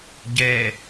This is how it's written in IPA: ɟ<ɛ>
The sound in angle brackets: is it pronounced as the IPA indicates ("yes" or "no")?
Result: yes